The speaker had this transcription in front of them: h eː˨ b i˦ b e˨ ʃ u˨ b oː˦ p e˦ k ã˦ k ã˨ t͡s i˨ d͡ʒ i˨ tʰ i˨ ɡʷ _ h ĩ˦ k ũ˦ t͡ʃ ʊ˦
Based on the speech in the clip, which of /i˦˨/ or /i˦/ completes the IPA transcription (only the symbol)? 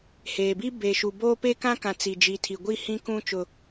i˦˨